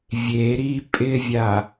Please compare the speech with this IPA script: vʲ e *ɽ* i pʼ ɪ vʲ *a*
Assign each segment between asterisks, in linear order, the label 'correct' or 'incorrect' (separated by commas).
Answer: incorrect, correct